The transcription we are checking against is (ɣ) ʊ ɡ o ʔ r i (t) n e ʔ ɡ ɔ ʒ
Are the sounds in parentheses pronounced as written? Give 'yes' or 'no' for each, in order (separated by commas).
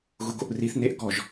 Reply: yes, no